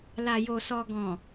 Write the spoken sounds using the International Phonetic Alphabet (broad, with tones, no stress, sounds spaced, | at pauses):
l a˨ j o˨ s ɔ˨ ɡ ɔ̃˨